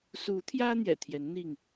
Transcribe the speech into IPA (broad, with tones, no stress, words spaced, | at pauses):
su˨˦t̪ʰjä˦ n̪jɛ̰˨˩t̪ʰjɛ˨˦n n̪i˥˨ŋ